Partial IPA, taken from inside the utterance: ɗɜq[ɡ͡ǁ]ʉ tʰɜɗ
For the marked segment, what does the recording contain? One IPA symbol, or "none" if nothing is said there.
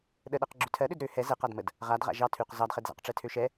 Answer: ɡ͡ǁ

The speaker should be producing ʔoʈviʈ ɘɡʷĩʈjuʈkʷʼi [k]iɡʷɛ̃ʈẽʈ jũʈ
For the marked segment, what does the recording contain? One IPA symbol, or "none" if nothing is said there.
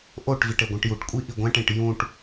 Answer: ʔ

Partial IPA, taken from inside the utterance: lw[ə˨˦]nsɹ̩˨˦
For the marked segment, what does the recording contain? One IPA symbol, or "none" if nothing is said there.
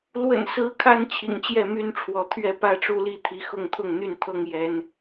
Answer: ə̰˨˩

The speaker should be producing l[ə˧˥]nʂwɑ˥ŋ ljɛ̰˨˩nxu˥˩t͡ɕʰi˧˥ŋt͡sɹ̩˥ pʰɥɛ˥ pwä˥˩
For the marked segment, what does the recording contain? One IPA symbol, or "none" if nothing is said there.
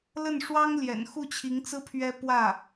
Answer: ə˥˩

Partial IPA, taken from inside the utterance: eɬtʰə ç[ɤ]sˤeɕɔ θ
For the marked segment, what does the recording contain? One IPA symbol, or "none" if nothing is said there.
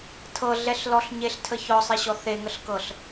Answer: ɔ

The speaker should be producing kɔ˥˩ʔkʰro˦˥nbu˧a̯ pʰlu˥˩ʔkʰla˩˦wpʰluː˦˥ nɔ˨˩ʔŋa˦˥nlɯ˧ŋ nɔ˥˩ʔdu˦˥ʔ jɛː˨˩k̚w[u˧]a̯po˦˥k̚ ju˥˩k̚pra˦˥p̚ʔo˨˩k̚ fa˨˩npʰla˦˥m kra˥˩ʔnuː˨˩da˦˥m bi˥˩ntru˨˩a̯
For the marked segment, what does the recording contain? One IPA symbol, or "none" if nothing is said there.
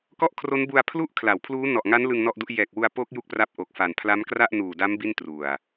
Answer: u˧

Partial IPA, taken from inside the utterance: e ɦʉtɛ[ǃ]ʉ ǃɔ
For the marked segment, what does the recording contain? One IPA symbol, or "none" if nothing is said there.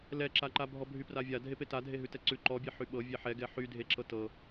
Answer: ǀ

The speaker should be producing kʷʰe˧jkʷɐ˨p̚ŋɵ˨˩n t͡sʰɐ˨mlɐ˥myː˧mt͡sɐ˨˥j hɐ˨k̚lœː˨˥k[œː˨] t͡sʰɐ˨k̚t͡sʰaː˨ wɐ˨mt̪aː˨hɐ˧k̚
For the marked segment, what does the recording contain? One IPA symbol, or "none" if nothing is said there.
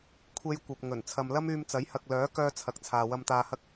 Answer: œː˧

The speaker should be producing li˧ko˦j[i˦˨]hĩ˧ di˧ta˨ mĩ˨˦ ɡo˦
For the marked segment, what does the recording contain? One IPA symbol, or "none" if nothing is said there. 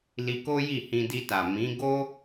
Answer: i˦˨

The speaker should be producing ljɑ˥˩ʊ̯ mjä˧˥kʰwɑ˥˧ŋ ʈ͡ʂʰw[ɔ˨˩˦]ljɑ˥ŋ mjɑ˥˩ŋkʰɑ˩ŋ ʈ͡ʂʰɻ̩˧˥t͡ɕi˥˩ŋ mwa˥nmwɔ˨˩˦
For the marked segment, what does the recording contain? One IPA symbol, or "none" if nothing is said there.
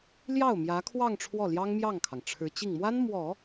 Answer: ɔ˥˩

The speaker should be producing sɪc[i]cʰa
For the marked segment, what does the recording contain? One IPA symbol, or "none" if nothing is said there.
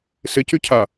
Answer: y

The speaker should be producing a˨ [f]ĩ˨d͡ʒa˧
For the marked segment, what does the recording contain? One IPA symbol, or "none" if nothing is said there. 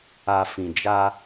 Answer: f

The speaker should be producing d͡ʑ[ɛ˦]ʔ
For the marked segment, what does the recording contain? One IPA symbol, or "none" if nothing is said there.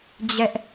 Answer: ɛ˦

